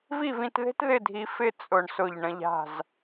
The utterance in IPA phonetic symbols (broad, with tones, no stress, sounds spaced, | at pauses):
v i˥˧ v ĩ˧ t ð e̤˥ t ð ɪ˥˧ dʱ i˧ f ɪ˥˧ t͡sʼ ʊ˧˩ ɳ s ʊ˧˩ ʎ ɳ ə̃˧ ʎ a̤˧˩ z